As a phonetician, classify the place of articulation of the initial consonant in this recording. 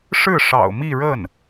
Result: retroflex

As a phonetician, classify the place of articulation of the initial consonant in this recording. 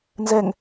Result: alveolar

